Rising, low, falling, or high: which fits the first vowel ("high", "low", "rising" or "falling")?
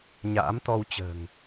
rising